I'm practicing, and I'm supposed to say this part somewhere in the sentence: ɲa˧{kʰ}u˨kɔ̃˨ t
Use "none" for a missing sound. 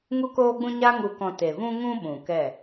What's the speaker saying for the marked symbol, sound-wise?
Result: ŋ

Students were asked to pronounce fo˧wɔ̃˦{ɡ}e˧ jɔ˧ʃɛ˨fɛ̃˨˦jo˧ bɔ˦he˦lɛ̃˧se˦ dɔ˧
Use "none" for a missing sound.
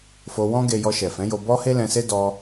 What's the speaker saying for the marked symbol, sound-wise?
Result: ɡ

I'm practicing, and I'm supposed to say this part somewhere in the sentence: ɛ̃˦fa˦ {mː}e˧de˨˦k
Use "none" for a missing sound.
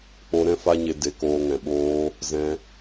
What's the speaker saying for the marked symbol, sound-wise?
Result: ɲ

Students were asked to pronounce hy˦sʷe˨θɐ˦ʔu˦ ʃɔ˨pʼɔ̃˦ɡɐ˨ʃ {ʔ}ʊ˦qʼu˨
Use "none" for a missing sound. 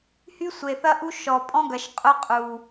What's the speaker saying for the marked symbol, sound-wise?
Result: qʼ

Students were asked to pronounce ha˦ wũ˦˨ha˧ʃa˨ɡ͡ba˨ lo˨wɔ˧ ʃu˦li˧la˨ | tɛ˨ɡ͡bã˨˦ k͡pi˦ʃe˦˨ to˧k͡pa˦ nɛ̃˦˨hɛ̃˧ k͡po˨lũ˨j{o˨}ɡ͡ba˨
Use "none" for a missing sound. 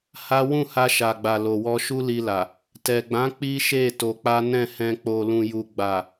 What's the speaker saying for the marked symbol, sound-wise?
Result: u˨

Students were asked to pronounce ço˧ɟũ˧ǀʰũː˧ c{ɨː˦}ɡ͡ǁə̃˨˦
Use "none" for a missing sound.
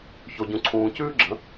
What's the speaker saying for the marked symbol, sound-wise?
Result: ʉː˦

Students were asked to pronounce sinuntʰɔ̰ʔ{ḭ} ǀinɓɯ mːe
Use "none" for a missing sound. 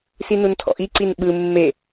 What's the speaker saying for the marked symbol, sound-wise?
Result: i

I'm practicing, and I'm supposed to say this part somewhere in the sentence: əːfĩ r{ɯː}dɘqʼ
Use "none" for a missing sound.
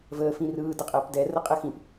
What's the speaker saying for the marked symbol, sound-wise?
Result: ɯː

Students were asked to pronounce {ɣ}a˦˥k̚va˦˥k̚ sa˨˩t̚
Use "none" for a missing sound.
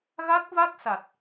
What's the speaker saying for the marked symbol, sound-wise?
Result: ɣ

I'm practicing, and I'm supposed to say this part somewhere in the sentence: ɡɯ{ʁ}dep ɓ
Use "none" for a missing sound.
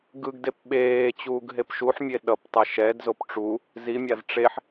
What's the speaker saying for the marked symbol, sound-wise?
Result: ɡ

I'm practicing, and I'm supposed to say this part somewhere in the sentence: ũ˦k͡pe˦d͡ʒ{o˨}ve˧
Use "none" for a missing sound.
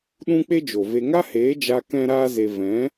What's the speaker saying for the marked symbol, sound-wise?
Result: o˨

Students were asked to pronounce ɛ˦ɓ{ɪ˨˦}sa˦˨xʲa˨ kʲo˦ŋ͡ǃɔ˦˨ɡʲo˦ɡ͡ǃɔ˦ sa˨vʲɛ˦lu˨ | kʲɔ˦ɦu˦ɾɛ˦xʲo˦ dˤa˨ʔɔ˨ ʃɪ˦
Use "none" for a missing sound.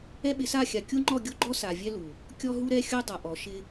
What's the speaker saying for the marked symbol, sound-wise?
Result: ɪ˨˦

